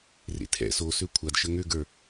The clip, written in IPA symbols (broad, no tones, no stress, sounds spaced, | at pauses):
r ḛ tʰ ɛ̰ s o s ø kʷʰ a d ʃ ə ŋ ø ɡ ə˞